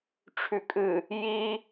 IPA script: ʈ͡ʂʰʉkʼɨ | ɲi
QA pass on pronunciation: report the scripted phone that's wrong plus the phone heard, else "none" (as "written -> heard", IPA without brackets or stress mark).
ɲ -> j